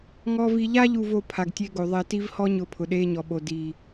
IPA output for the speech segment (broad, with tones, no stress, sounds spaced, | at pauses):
ŋ ɔː˦ v i˦ ʎ a˦ ʎ u˨ v o˨ pʰ a˨ ɡ tʲ e˦ ɡ o˨ ðˤ ɛ˨ t i˦ v h ɔ˦ ɲ ʊː˨ pʰ ʊ˨ ɗ eː˦ ɲ ɔ˨ ɓ o˨ d i˨